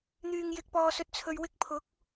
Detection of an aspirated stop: present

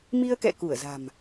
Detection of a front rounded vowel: absent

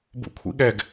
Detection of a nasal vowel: absent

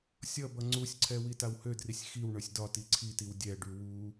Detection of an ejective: absent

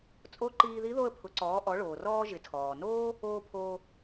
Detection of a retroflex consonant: present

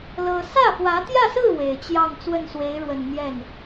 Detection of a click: absent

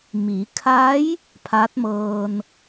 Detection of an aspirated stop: present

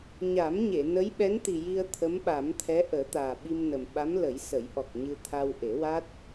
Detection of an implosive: present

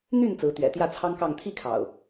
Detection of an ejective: absent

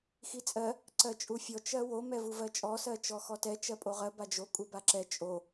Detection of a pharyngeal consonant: absent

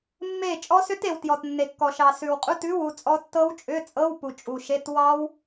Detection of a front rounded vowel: present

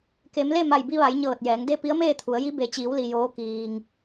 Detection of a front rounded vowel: absent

